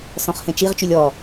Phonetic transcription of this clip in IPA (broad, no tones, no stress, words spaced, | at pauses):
sɔ̃χhẽt͡ʃiʁt͡ʃylʲ ɔ